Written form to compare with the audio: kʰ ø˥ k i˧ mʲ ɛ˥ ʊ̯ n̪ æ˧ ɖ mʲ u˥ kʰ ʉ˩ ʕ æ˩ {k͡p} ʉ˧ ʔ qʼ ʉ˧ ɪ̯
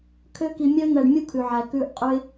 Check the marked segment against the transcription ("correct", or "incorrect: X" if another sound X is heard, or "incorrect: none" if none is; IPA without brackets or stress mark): incorrect: k